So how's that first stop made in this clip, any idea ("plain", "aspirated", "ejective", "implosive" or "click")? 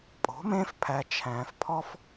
ejective